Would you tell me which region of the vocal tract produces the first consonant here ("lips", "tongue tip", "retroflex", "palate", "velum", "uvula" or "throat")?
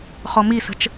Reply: uvula